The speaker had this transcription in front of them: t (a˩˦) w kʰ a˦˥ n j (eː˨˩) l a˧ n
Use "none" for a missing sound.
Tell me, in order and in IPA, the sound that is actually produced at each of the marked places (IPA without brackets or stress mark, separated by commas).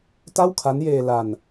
a˥˩, eː˧